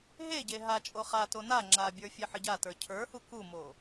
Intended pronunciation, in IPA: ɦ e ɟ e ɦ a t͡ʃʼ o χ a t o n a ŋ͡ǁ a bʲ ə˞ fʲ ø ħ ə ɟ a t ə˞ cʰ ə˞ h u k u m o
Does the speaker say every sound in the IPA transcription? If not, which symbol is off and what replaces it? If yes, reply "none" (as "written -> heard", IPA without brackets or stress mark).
ø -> e